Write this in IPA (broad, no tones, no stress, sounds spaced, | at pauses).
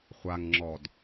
χʷ a ŋ ŋ͡ǁ ɔ d